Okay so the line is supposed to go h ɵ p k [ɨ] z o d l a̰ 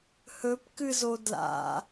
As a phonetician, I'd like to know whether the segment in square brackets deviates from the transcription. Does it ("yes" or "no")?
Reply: no